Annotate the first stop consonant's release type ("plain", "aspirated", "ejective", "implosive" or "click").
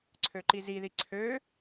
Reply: click